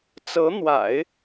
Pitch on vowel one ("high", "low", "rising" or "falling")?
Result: rising